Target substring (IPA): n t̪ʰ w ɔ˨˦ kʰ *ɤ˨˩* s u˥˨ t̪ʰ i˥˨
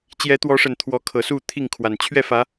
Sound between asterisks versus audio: correct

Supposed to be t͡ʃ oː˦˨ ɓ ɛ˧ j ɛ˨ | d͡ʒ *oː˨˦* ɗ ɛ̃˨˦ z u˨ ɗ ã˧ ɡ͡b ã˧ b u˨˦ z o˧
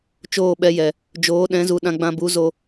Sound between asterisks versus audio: correct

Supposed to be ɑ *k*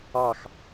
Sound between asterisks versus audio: incorrect: x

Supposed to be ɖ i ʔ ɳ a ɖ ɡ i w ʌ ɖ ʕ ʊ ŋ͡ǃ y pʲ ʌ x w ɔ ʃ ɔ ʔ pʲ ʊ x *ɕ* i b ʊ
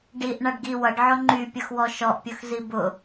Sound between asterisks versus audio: incorrect: z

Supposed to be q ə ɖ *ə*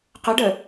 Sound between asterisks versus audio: correct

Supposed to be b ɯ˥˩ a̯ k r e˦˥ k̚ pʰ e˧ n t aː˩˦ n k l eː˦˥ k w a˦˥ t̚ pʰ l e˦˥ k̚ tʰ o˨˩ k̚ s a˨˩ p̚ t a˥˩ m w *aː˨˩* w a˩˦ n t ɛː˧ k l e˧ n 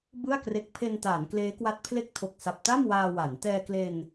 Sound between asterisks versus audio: incorrect: aː˧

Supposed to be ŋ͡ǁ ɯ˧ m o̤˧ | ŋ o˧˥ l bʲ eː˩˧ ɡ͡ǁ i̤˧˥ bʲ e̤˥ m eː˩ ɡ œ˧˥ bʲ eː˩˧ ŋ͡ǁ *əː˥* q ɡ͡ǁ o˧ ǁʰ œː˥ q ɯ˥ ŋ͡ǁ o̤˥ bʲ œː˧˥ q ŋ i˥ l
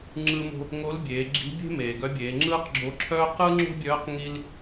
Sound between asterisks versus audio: incorrect: ɯː˥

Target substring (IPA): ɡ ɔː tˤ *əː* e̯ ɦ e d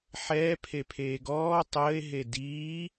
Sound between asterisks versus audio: correct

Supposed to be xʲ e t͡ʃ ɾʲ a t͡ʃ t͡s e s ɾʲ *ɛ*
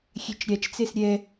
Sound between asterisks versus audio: correct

